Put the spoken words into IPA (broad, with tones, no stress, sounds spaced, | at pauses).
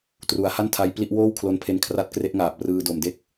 t r u˩˦ a̯ h a˥˩ n tʰ a˧ j p l i˥˩ ʔ w oː˥˩ w kʰ l o˧ n pʰ e˧ n kʰ r a˦˥ t̚ k r e˦˥ ʔ ŋ aː˨˩ p̚ r ɯː˧ d o˨˩ m d e˥˩ k̚